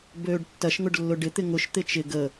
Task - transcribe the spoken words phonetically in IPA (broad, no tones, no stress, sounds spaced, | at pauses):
b øː ɖ tː ɐ ʃ ŋ ʊ ɖ lː ʊ ɖ ɪ t̪ ɪ ŋ ʊ ʃ t̪ ɪ t͡ʃ ɪ ɡ ə